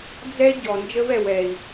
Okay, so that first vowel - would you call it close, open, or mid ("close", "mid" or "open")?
mid